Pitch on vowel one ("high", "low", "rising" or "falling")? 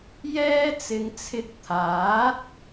high